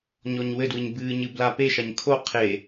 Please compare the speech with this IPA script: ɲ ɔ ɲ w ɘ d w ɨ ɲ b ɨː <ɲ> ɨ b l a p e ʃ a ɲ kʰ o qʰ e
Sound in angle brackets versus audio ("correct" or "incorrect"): correct